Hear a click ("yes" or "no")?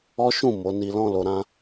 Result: no